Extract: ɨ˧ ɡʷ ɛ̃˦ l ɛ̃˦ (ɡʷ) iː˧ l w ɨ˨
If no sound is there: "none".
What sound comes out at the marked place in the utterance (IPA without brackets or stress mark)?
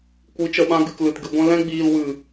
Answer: ɡ͡b